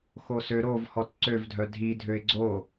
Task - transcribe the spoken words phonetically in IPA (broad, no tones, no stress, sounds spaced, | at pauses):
x o s ø ɾ o v h ɔ t ǀ ø v dʱ œ dʱ i dʱ ø ɪ̯ ɡ͡ǀ o